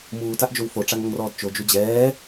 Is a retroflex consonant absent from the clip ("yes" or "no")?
no